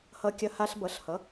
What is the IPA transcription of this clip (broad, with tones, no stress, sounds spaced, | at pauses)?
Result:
h ʌ˧ kʲ ɐ˧ h a˧ ɬ b ʌ˩˥ ɬ h ʌ˩˥